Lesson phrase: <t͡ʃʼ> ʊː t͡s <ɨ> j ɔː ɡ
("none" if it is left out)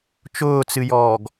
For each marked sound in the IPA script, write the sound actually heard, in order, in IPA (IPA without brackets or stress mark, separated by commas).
t͡ʃ, ɨ